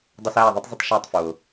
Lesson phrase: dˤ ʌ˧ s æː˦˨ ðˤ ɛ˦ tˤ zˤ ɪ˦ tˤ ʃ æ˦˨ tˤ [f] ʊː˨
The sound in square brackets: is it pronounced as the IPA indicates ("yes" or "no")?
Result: yes